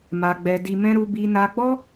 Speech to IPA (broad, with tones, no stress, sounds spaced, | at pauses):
m a˨ ɡ͡b ɛ˨ d i˨ m ɛ̃˧ ɾ u˧ b i˧ n a˧ ɡ͡b ɔ˦